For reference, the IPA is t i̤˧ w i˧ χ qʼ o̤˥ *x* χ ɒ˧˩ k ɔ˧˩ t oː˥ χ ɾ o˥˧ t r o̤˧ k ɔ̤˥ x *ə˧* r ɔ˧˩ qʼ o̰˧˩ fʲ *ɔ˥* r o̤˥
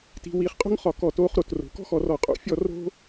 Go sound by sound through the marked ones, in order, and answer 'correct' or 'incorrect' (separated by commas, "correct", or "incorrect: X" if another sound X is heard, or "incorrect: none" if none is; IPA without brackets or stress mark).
incorrect: ŋ, incorrect: ɔ˧, incorrect: ɔ˥˧